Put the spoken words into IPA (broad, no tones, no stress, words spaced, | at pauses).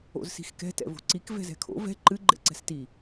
o̰zsi̤xkɛ̤ tɛ̰vo̤ǀik vɛ̤zɛ̤kʰo̰ vɛ̤ ǃɨ ɡ͡ǃɛ̰ǀɛ̤sti